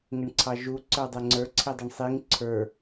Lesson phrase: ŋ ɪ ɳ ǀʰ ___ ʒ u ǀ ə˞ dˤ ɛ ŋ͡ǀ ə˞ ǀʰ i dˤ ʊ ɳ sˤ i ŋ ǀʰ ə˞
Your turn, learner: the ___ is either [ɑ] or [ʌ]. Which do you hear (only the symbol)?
ɑ